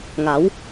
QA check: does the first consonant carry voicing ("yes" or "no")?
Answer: yes